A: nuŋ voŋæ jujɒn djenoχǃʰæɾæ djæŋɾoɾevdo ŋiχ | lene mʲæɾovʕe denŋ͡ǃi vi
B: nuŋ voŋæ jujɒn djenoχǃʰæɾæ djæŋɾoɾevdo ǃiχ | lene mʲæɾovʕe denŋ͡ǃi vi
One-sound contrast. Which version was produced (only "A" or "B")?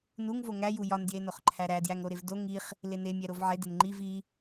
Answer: A